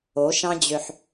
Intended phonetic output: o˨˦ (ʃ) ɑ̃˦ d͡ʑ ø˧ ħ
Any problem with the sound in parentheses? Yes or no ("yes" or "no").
no